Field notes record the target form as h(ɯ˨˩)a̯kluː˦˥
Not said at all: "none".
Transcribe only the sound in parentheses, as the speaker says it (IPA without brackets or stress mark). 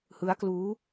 ɯ˦˥